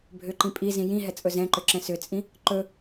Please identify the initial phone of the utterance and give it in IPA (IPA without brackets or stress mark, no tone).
bʱ